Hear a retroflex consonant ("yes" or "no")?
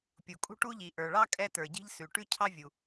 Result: yes